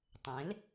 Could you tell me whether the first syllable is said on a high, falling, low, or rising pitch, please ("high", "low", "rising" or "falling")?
rising